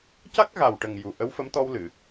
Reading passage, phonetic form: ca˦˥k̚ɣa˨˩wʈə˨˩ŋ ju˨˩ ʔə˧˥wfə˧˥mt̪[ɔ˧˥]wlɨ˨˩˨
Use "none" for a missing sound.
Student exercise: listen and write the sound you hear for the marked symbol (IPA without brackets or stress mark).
ɔ˧